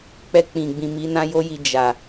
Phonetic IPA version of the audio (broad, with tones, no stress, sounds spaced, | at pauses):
k͡p ɛ˧ k͡p ĩ˨ ɡ͡b ĩ˨ m i˨˦ n ã˦ j o˦ j i˧ d͡ʒ a˨